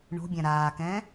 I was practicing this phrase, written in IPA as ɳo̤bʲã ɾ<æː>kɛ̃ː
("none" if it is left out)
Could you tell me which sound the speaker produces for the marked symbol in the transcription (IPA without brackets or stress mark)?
aː